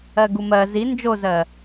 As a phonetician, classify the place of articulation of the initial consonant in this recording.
velar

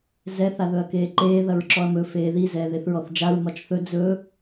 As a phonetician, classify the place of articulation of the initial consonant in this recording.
alveolar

